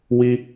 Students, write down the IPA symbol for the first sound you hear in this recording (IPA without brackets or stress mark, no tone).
w